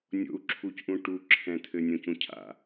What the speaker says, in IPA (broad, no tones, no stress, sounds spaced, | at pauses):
nʲ o̰ u̯ ǁʰ u c ʔ ũ ʈ u ǁʰ ɛ̃ t̪ʰ ɘ nʲ õ c ũ cʰ a̰